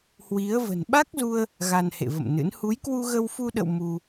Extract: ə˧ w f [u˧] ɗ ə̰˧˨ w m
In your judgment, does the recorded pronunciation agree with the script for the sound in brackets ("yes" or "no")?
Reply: yes